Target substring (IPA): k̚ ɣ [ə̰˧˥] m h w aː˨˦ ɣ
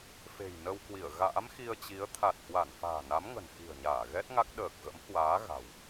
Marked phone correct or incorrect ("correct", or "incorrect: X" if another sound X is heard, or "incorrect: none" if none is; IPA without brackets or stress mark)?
correct